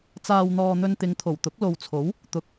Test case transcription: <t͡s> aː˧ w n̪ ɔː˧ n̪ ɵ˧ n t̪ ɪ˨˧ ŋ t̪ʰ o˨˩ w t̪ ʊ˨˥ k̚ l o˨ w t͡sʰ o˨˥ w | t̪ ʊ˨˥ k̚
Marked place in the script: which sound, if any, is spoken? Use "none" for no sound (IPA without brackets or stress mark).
t͡s